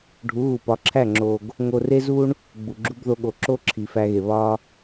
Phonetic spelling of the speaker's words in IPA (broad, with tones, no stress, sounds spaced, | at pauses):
ɖʱ u˨˦ ɣ u˨ p ɒ˨˦ ǁʰ æ˦˨ ŋ͡ǁ o˨ ɡ | ŋ o˧ r e˦ z u˦ ɳ | ɡ͡b u˨ ɡ͡ǁ u˦ b ð o˧ ɠ o˨ ǁ o˦ ǁʰ i˨ f æ˧ ɣ e˨ β ɒ˧